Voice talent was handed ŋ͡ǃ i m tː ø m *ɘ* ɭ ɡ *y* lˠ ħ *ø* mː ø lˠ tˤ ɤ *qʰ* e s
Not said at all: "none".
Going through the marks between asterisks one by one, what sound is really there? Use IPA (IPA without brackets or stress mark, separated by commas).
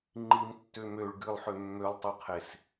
ø, ɨ, ø, qʰ